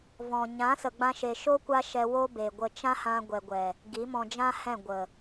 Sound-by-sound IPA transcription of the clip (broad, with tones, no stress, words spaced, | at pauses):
vɔ̃˨ ɲã˨˦sə˨ ɡ͡bã˧ʃe˨ʃo˦ kʷa˦ʃɛ˧ wo˦be˨ɡʷə˧ t͡ʃã˦hã˧ɡʷɛ˨ɡʷɛ˨ | ɡi˨˦mɔ̃˧d͡ʒã˦ hɛ̃˦˨ ɡʷə˨